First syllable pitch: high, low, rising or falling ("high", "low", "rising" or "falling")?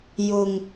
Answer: low